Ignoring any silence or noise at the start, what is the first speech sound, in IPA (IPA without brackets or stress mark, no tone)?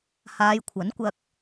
h